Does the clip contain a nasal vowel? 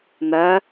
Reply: no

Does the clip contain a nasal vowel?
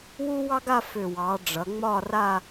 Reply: no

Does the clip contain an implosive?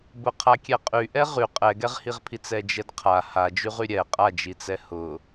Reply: no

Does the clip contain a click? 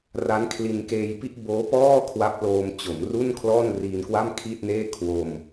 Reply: no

